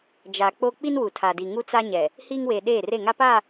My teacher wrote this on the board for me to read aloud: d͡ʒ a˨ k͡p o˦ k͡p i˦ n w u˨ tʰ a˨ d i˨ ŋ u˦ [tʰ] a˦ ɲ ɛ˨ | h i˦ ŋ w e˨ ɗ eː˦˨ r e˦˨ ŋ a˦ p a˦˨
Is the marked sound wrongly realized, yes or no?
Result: yes